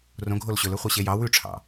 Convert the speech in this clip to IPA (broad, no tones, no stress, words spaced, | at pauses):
rõɡʱol ɕɵlɵ χʷɛɕejɑ wʉʈ͡ʂʰɑ̰